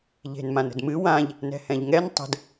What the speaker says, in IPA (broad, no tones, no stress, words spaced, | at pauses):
ʎe̤nmãnə̤dmɨ wãʎ | nɛ̤hɛ̃ʎŋɛn tˤə̤d